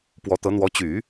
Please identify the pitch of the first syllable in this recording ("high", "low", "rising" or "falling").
rising